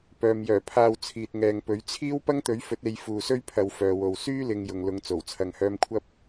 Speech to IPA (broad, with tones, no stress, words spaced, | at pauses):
pœː˨m jœː˨˩pʰaː˨w t͡sʰiː˨t̚ŋɛː˨ŋpɵ˨˥ɥ t͡sʰiː˥w pɐ˥ŋt̪ɵ˨˥ɥfɵ˨˥t̚e˨˧j fuː˨sɵ˥ɥpʰɐ˨˧w fœː˨wo˨w syː˥lɪ˨ŋ jʊ˨ŋlʊ˨˧ŋt͡so˨˩w t͡sʰɐ˨ŋhœː˧mkʷʰɐ˥p̚